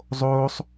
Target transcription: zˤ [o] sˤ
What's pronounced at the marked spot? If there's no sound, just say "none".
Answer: o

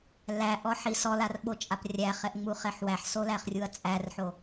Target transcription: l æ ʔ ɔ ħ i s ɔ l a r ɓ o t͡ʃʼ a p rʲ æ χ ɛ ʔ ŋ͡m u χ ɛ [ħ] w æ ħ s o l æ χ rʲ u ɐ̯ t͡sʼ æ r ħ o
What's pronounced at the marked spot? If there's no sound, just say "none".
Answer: ħ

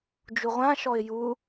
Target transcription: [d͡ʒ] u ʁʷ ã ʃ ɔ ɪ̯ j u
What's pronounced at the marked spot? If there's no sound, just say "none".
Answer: d͡ʒ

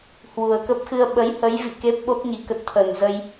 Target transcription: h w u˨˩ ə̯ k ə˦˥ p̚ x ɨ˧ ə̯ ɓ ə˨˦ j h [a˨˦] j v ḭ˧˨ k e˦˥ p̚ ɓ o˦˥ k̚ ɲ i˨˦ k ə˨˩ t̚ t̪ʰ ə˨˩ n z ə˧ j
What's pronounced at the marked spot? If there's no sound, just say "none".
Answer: ə˨˦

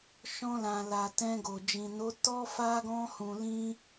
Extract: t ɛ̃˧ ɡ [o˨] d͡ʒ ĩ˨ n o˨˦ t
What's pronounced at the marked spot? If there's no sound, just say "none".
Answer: o˨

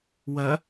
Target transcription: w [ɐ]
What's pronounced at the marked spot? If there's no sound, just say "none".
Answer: ɐ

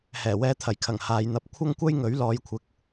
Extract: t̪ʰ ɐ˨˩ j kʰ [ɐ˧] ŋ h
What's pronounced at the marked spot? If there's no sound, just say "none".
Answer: ɐ˨˩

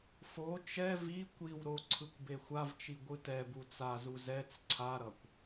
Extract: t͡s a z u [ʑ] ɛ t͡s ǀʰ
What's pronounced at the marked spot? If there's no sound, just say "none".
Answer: z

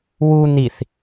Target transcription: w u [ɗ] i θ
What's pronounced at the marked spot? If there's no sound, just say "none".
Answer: n̪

